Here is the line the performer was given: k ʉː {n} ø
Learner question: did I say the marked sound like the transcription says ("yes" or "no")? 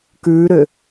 no